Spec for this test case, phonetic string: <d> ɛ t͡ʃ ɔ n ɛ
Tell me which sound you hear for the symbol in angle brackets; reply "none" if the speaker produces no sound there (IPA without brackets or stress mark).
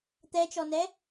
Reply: t̪